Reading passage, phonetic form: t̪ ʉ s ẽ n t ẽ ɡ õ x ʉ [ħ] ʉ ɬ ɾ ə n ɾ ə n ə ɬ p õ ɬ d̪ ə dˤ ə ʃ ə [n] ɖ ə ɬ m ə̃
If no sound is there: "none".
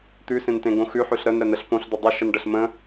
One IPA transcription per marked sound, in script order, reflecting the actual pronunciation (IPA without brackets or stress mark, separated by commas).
ħ, n